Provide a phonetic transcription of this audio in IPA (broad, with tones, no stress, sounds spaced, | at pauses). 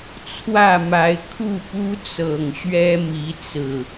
t͡sʰ w ä˥˨ m a˨˦ ɪ̯ kʰ u˥˨ p u˦ t͡s ɤ˨˩ ŋ ɕ ɥ ɛ˦ m i˨˦ t͡s ɹ̩˨˩